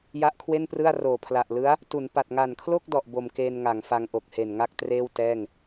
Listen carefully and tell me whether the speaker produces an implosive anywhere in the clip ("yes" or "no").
no